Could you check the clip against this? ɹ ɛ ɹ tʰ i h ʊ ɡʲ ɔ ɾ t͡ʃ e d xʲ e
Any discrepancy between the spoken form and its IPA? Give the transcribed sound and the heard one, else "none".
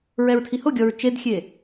ɾ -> ɹ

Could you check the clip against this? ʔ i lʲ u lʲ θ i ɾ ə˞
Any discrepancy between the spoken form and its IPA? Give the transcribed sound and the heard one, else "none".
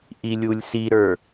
θ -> s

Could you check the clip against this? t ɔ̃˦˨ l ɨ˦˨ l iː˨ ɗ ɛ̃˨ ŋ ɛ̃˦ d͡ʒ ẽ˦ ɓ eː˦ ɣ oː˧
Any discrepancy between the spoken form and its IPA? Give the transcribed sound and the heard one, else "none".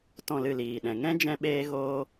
ẽ˦ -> ɛ̃˦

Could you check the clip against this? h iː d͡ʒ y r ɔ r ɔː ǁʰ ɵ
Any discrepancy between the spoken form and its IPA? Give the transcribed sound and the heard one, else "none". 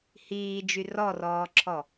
ɵ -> ɔ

